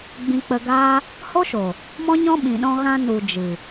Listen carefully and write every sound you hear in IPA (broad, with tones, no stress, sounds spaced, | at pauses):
ɡ͡b ĩ˧ k͡p ə˧ ɡ aː˦ | h o˦ ʃ o˨ | m ɔ̃˦ ɲ ɔ̃˦ ɓ ĩ˨ ɗ ɔ̃˧ ɣ ã˧ n u˨ d͡ʒ ɨ˨